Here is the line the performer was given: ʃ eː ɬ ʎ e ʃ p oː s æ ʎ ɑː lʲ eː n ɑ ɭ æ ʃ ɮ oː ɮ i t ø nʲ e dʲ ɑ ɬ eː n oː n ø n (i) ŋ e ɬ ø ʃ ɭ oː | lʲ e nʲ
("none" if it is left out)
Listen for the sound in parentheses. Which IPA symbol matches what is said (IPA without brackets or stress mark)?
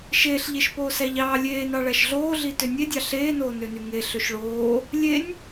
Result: y